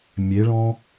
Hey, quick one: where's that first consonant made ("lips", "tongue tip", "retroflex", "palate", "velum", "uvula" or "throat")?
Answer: lips